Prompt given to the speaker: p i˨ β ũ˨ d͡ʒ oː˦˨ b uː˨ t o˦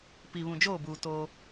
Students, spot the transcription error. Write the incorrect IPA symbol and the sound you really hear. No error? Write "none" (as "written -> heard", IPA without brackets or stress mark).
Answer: none